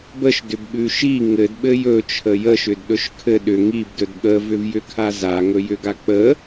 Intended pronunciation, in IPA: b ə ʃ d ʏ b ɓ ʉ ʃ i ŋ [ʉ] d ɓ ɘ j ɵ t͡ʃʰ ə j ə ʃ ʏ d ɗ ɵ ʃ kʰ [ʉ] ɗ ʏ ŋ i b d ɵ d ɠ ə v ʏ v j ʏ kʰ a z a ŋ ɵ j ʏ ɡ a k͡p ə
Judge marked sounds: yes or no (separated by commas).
no, no